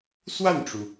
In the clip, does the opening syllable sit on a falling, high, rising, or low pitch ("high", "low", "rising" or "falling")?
falling